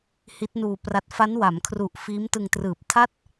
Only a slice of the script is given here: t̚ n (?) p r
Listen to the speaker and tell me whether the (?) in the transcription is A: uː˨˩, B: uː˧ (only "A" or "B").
B